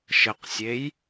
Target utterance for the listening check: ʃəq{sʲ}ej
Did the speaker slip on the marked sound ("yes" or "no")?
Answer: no